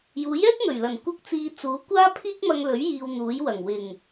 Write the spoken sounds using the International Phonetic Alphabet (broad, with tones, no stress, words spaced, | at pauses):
juː˨˥jɛː˥k̚ŋɵ˨˩ɥlɐ˨˩n kʷɐ˥k̚t͡siː˧ t͡suː˨˥kʷaː˥ pʰiː˥k̚mɐ˧ŋlɵ˨˥ɥ jiː˧wn̪uː˨˥jwɐ˨˩ŋ wɪ˨˩ŋ